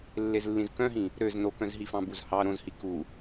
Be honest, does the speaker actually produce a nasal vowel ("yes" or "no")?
yes